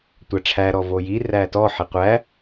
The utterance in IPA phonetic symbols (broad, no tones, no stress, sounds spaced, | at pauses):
tʷ æ ʈ͡ʂʰ æ ɾ ɔ v o j i r æ t ɔ ħ i qʷ æ